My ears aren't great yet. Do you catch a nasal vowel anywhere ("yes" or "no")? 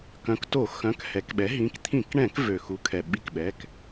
yes